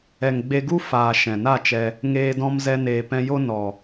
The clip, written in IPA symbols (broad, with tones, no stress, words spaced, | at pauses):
ɛ˨ŋɡ͡be˧ɡu˦ faː˨ ʃɛ̃˨na˦˨t͡ʃɛ˧ | ŋeː˧dɔ̃˧m zɛ˧neː˨pɛ̃˧jo˦ nɔ˨